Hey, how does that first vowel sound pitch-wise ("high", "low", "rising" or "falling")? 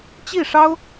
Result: falling